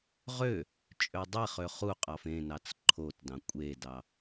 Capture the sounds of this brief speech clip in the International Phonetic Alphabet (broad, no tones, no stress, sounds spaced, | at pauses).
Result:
ʁ ø | t͡ʃʼ ø dˤ i χ ø χ u qʼ ɑ f ẽ n ɑ t͡s ǃʰ o t d ɑ̃ kʷʼ e d ɑ